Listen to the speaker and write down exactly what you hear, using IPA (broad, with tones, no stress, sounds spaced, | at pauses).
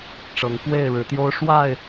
ʈ͡ʂ ɤ˨˦ ŋ k w e˥˨ ɪ̯ ɻ ɻ̩˨˦ t̪ j o˦ ʊ̯ ʂ w a˥˨ ɪ̯